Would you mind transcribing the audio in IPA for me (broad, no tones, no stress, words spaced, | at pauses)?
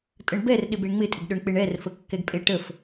tʼəɳbɛrɗɪb eɳŋ͡mɪtʼɪɡɗɵɳ k͡pɪɳɛrfəkːɛɡ pʼeʈəf